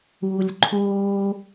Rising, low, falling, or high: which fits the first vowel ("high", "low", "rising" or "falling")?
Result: low